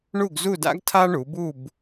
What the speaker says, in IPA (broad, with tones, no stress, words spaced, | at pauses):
ɳu˥˧ɡzu˥˧da̰˥ɡ tʰa˥ ɳu˨˦bu˥˧b